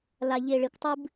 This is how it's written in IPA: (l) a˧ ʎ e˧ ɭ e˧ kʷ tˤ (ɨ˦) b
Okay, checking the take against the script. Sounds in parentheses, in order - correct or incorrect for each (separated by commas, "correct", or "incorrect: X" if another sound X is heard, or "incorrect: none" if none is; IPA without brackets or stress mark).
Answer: correct, correct